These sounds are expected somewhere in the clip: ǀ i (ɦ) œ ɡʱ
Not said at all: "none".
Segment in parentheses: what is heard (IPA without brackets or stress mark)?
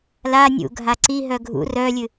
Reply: ɦ